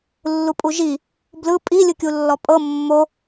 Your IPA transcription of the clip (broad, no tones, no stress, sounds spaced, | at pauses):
lː u pʼ u ʒ i | b l ɯ pʼ i lʲ ɯ kʲ u lː ɔ pʼ ɤ mː o